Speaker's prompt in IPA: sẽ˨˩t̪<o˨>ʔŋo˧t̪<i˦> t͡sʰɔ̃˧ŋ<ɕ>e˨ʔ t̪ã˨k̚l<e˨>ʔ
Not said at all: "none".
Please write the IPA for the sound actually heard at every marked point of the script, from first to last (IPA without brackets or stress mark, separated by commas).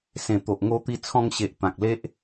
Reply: o˨, i˧, ɕ, e˦